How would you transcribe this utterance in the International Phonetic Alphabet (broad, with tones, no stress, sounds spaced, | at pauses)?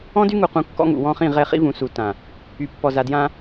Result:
ɔ̃˦ d y˦ ŋ u˨ q ũ˨ kː ɔ̰˦ ŋ ṵ˨ w ɔ̃˦ χ ĩ˦˨ ʁ ɛ˦˨ χ ḭ˦ v ũ˨ s u˨ t ã˨ | y˨ pː ɔ˨ z a˨ d j ã˦